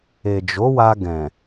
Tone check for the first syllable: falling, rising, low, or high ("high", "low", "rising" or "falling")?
low